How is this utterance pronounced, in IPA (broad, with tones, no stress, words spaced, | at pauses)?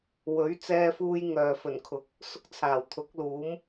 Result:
wɵ˨˥ɥt͡sɛː˧fuː˧j ŋœː˨fɵ˨˩nkʰʊ˨˥k̚ | sʊ˥k̚t͡sʰaː˨˩wt̪ʰʊ˨˥k̚ luː˨˥m